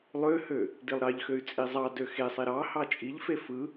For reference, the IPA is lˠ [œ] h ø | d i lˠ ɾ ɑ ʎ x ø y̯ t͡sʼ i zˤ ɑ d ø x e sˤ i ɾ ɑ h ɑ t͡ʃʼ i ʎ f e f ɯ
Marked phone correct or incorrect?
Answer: incorrect